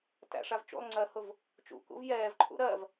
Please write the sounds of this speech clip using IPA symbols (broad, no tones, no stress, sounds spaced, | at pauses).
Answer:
t æ̰ ʂ a v t͡ʃ ṵ lˠ ŋ͡ǀ ɜ h ʊ v | t͡ʃ ṵ k ṵ v j ɛː v ǃʰ ṵ ɾ ɜ v